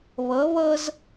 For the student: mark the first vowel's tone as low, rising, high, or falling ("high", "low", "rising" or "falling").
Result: rising